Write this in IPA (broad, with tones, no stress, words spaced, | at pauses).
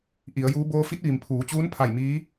ʔi˩˧ə̯juː˧˥ boː˧fi˧˥t̚ʋi˩m pʰuː˩˧t͡ɕuː˧˥npʰa˧˩j miː˧˥